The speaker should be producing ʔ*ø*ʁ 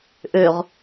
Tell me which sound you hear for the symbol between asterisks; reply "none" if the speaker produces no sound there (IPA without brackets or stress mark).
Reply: ø